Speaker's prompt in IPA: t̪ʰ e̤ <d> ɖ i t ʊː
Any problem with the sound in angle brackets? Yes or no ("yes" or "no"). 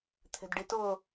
no